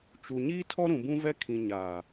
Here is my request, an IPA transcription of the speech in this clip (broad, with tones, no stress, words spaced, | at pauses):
t͡ʃu˨ ɲiː˦tʰɔ˦ɾũ˨ bũ˦vɛ˦ kʰĩ˨ ɲaː˨